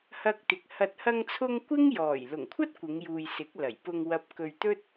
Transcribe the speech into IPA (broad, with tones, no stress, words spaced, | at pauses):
hɐ˧k̚t̪ɪ˨k̚ hɐ˨t̚hɐ˧ŋt͡sʰʊ˧ŋ kʷɪ˥ŋjɔː˨˩j lʊ˨˩ŋkʷʰɐ˥t̚ kʷɪ˨˧ŋjuː˨j sɪ˨˥k̚lɐ˨˩jpʊ˧ŋ wɐ˨p̚kɵ˨ɥ t̪ɵ˥t̚